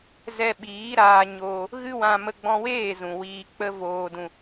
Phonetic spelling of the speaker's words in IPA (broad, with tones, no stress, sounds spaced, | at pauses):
z ɛ˧ ɓ iː˨˦ ɾ aː˧ ɲ oː˧ | ɣ ɨ˦ w ã˧ m ə˧ ɡ͡b ɔ̃˧ w eː˦˨ z ũ˨ w iː˧ k͡p ə˦ v oː˧ d ũ˧